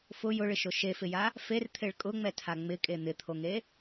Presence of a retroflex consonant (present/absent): present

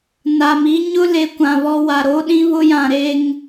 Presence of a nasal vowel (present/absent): present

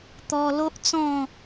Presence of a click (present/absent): absent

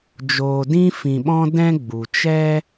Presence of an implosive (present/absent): present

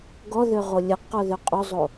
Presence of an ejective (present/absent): present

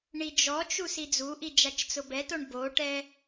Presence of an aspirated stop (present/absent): absent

